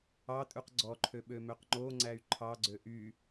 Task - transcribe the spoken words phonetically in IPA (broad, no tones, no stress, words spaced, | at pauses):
ɑtʼʉq ɡ͡ǀɔǃʰø ɓømøqŋ͡ǃoŋ͡ǀæy̯ ǃʰɑɡ͡ǀø ʔy